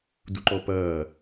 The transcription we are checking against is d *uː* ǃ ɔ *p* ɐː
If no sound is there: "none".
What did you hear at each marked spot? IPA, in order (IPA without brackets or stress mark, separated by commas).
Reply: u, p